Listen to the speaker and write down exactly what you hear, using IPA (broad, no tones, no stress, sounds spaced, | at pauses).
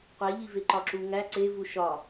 qʷ e ʎ i v e ǃ ɒ ǁ u ŋ æ ǀ e v u ʃ ɒ